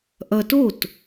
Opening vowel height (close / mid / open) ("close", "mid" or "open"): mid